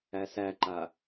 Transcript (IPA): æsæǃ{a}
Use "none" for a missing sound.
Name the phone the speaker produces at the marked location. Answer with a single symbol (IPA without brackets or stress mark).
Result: a